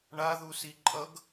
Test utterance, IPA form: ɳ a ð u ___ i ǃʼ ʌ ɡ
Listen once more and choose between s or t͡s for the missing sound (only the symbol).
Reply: s